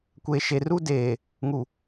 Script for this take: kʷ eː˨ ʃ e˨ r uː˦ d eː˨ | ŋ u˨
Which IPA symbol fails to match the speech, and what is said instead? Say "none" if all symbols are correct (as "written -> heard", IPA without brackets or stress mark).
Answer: none